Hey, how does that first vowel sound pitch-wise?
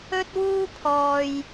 high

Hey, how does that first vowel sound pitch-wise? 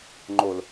low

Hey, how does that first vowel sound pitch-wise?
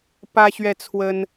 high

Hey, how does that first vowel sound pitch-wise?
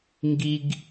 high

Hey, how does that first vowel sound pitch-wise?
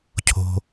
low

